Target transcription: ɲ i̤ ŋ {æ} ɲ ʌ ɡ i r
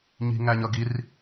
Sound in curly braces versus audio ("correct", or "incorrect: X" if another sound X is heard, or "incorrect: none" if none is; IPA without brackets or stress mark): correct